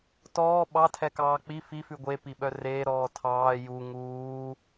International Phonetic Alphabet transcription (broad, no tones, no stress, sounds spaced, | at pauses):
t ɔː ɓ ɑ tʰ ɛ k ɑː k͡p i f i f ʉ ɡʷ e p i ɓ œ r eː ɾ ɔː tʰ ɑː j u ŋ uː